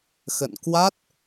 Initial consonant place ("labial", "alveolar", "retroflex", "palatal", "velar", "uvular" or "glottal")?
velar